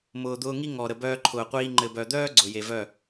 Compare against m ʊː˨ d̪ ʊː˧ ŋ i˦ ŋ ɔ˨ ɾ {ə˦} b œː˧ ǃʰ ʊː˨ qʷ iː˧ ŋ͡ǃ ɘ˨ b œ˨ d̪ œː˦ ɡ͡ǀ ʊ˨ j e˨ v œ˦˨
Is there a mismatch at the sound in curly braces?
yes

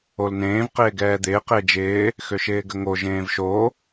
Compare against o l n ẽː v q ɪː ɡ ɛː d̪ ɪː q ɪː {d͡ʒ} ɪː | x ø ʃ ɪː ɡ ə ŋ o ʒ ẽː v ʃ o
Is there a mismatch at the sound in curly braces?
no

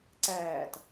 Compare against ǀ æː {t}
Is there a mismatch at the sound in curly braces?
no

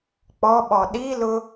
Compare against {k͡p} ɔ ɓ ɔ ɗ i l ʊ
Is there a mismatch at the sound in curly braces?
no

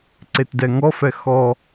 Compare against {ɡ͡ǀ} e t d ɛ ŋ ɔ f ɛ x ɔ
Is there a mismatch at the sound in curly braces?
yes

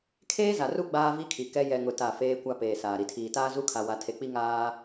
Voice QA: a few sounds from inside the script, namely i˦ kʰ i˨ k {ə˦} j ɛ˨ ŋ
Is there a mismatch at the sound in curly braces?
yes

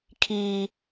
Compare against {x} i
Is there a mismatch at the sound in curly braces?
yes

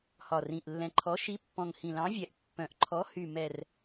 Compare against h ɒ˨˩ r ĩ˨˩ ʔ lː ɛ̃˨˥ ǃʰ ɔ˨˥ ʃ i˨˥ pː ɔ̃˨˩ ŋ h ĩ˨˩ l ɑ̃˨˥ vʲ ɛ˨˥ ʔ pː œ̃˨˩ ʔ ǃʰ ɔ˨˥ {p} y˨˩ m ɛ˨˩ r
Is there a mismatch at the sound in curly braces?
yes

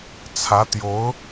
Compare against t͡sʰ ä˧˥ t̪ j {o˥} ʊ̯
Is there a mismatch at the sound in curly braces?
yes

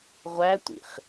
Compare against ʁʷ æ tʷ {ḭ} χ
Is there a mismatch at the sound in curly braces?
no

